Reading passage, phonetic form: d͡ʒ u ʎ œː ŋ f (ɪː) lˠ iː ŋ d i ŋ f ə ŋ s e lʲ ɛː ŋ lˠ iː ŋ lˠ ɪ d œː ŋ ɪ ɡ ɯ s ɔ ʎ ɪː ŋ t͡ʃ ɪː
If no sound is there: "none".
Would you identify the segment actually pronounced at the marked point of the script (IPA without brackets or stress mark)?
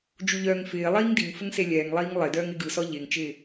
ɪː